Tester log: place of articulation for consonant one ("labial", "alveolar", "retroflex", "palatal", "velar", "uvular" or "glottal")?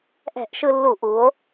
glottal